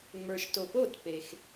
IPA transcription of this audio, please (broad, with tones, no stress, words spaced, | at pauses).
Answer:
ŋ͡mə˞˨ʃto˨po˥˩t pe˨x